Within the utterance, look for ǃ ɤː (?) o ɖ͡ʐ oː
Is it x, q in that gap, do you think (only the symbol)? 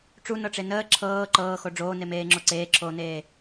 x